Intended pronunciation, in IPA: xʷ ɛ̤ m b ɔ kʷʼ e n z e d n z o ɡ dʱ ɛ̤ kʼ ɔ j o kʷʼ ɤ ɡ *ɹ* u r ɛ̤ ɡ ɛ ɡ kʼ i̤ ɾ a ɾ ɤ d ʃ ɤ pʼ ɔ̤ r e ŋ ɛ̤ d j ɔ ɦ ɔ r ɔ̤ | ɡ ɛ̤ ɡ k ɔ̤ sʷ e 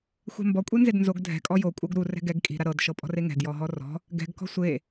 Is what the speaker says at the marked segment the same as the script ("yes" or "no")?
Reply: no